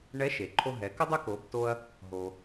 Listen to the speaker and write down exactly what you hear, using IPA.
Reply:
ɳ ɛ˧˥ ʃ e˩ ǃʰ o˧ ɦ ɛ˩˧ k ə˥ dˤ ʏ˥ k o˩˧ b t o˧ ɐ̯ | ɦ o˩

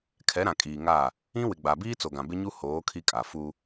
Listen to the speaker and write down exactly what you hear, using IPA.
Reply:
kʰ ɛ˨˦ ɾ ã˨ kʼ iː˨ ŋ a˦˨ | ĩ˦ w ɪ˨ ɡ͡b a˨ b iː˦ t͡s o˨ ɡ ã˨ b ɪ˦ ɲ u˦ h oː˨˦ kʰ i˦ kʼ a˨ f u˦

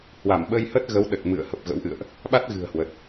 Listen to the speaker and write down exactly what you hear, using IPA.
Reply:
h w a˧˩ m ɓ ə˧ j h ə˦˥ t̚ ɣ ə˨˦ w ɗ ə˨˩ t̚ m ɨ̰˧˨ ə̯ h ə˨˩ p̚ ɣ ə̰˧˥ w ʔ ɨ̰˧˨ ə̯ ʔ | ɓ a˦˥ t̚ ɣ ɨ̤˨˩ ə̯ h w ə˨˩ t̚

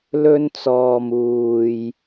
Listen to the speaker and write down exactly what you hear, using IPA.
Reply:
l ɵ˧ n t͡s ɔː˨ m uː˨ j

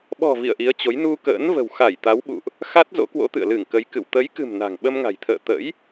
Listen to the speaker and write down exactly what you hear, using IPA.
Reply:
ɓ ɔ̤˨˩ v ḭ˧˨ ə̯ ʔ i˨˦ ə̯ t͡ɕ o˨˦ j n u˧ k ə̰ː˧˥ n v ə̤˨˩ w x a˧˩ j t̪ a˨˦ w ɓ ṵ˧˨ ʔ | x a˦˥ t̚ z o̰˧˥ k w o̰˧˥ t̪ ɨ̰˧˨ ə̯ l ɨ˧˩ ŋ k ə˨˦ j k ɨ̰˧˨ w t̪ ə˨˦ j k ɨ̤˨˩ m n a̤˨˩ ŋ ɓ ə˧ m ŋ a̤˨˩ j t̪ʰ ə̰ː˧˨ t̪ ə̰˧˥ j

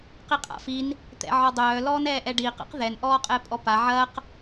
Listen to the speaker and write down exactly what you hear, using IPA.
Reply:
q i qʼ a̰ f i n | t̪ ɛ̰ ʕ ɔ dˤ œː l ɔː n ɛː ʔ ɛ ɖ iː q a̰ q ð ɛ n ʔ ɔː qʼ ɛ pʼ ɔ p a ʕ ɐː q

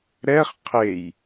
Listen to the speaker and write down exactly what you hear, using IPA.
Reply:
ɾ ɛ χ qʰ e j

